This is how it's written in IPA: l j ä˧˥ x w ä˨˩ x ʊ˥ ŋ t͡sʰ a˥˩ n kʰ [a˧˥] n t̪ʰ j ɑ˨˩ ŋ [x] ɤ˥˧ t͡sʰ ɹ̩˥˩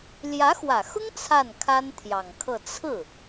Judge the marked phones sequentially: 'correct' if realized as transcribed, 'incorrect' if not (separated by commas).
incorrect, incorrect